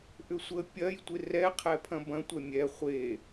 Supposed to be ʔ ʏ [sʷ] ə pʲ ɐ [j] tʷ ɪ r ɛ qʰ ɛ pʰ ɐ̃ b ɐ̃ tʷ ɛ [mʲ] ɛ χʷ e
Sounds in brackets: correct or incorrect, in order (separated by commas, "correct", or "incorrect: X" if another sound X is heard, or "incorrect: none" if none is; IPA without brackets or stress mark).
correct, correct, correct